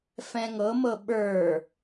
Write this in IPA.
f ɛ̃ ŋ ɤ m ɤ ɓ ə˞

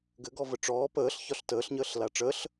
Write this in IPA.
ɡ ɘ ɡ ɔ v ə ʈ͡ʂ ɔː p əː ɬ ç ɒ ɬ t əː ɬ ɲ əː ɬ l a ʈ͡ʂ əː ɬ

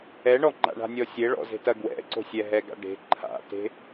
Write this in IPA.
ɛ ɳ ɔ ŋ͡ǃ a̰ ɳ a̤ nʲ ɔ sʲ e ɭ ɔ̰ z e̤ t ɐ ɡ w ɛ̰ ǀ o̤ sʲ ɛ ɦ ɛ ɡ a̰ ɖ e̤ ǃʰ a̰ t e̤

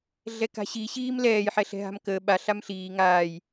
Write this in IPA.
ɮ ɛ k a̤ ɕ i ɕ iː m l ɛː j ħ ɛ ɬ ɛ̤ ɦ a̤ m k əː ɓ a ɬ a m ɬ iː ŋ aː j

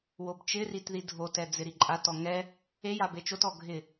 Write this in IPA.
w o b t͡ʃ ɪ r i t ð i dʱ o t ɛ d͡z ɪ ɾ i ǃʼ a t ɔ ŋ ɛ | e j a b e t͡ʃ o t ɔ ɡʱ ɪ

